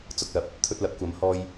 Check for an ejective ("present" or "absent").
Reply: absent